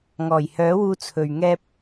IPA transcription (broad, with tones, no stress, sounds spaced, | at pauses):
ŋ ɔː˨˩ j h œː˨˥ w uː˧ t͡sʰ ɵ˨ ɥ ŋ ɛː˧ p̚